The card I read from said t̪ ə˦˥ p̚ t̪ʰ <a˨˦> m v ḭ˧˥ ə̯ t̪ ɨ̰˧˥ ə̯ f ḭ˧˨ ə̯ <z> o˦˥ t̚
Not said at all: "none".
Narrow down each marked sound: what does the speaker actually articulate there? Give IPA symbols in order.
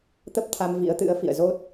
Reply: a˧, z

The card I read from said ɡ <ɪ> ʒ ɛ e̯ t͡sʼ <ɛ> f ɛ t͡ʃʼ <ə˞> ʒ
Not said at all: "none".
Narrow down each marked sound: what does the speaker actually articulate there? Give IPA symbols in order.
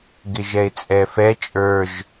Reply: ɪ, ɛ, ə˞

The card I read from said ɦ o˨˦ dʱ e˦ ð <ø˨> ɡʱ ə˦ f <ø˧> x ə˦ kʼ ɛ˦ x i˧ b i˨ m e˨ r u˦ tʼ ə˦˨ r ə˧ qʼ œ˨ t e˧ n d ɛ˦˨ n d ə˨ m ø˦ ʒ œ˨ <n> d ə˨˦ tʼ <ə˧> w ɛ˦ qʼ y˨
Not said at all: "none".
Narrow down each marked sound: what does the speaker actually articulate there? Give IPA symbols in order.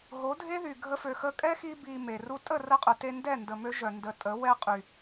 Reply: y˨, ø˧, n, ə˨˦

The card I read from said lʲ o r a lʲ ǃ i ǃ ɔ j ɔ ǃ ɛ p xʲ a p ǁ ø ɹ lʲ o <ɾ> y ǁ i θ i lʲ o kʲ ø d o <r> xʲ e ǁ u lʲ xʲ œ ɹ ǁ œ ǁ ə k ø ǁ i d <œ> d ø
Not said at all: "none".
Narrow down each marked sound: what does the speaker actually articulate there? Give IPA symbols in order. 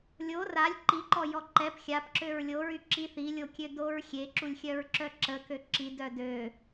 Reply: ɹ, ɹ, œ

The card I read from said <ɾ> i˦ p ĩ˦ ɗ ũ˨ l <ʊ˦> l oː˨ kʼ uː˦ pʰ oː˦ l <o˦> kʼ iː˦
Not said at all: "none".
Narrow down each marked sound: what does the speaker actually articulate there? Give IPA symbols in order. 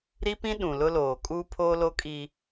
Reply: ɾ, ʊ˦, o˦

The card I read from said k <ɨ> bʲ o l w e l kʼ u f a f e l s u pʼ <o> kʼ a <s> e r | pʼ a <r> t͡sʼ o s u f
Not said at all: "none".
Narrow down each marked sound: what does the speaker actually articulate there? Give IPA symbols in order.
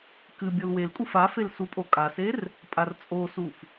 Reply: ɨ, o, s, r

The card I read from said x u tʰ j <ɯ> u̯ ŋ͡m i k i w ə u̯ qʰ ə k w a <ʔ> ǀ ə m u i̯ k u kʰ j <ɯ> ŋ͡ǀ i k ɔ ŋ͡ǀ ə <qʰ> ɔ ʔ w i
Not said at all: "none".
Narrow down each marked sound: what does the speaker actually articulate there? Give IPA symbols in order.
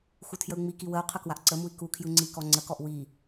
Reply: ə, ʔ, ɯ, k

